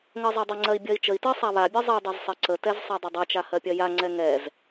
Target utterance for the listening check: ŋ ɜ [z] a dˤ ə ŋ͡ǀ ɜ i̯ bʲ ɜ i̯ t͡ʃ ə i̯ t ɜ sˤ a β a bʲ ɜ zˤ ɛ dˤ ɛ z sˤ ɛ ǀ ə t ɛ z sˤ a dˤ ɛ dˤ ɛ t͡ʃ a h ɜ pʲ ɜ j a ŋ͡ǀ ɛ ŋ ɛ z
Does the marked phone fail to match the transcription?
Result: yes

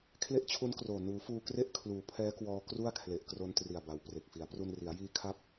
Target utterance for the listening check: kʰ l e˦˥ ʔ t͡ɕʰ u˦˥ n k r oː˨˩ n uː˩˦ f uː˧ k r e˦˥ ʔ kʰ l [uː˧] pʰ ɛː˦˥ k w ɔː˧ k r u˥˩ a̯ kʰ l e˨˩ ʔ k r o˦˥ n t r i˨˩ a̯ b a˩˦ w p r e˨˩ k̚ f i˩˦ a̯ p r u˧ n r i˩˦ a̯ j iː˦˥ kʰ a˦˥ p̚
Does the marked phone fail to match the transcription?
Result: yes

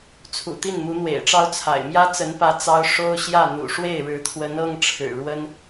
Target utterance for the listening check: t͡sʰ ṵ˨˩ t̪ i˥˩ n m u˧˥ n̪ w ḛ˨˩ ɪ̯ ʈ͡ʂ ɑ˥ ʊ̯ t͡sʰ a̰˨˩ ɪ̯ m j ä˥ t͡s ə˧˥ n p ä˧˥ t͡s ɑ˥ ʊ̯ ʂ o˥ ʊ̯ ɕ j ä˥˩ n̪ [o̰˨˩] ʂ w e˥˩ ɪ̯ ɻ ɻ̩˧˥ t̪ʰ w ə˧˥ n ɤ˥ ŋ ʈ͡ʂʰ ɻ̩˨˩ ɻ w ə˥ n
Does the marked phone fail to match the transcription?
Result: yes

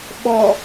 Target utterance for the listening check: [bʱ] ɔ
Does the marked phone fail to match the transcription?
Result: yes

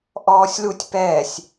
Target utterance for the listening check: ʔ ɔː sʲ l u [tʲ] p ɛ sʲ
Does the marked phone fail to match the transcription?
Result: no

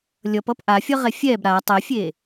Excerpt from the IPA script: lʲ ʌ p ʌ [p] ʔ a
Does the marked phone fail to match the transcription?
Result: no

